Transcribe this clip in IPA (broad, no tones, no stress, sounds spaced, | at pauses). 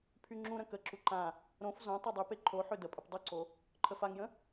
pʰ y ŋ͡ǁ ũ ɾ ə̃ k ə ǁ u ǃ ã | ɾ õ f z õ tˤ o dˤ y p e ǃʰ o ħ ø d ə pʼ ə p dˤ u ǀ o | ǃʰ ə f a ŋ j ə̃